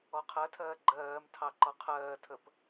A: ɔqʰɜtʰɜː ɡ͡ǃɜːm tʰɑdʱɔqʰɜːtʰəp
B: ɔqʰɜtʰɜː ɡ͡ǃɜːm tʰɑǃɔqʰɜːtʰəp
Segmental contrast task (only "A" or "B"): B